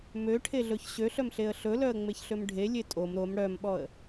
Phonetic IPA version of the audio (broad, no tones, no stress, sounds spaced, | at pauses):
m ø ʈʰ e ɮ ɵ ç ɕ ø ɬ œ m ɬ e ə̯ ɬ ɵ l œ ə̯ ŋ͡m e ç ɬ ø m ɖʱ e lʲ e tʼ o m ɾ o m ɽ œ m ɓ ɔ ə̯